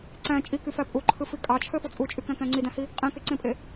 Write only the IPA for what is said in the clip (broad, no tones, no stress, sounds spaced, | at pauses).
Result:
ǀ æ̃ t͡ʃʼ i k y f æ pʼ u ǃʰ ɯ f i kʼ ɑ t͡ʃʰ ø f o t͡sʼ u t͡ʃʼ y k æ̃ k æ̃ ŋ͡ǀ i d æ̃ h i | qʼ ẽ k e ǀ ẽ pʼ e